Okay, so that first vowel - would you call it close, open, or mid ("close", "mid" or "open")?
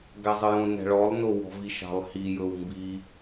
open